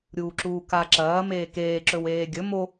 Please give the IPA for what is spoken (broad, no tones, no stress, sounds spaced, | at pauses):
ɾʲ uː ǁ uː k a ǁ ɐː m eː k eː ǁ ɵ w eː ɡʲ ɵ m o